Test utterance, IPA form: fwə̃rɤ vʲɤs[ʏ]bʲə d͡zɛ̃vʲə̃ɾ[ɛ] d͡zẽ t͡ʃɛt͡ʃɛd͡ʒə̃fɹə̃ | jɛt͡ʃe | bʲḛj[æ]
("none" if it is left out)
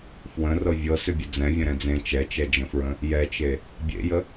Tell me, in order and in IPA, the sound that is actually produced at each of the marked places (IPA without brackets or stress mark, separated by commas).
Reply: ʏ, ɛ̃, ə